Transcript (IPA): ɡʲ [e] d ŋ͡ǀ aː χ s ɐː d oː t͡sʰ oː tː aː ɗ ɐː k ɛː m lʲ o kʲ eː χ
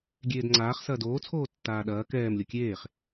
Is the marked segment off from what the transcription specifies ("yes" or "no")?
yes